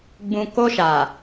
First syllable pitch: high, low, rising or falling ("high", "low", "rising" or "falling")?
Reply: low